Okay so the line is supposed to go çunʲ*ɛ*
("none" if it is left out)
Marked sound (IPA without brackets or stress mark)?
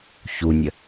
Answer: ə